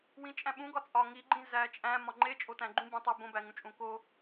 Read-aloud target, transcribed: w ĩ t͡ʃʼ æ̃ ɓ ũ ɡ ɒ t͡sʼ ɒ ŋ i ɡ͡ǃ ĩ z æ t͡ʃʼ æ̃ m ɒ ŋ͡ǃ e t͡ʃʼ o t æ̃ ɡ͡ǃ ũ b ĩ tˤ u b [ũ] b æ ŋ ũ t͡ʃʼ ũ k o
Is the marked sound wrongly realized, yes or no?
yes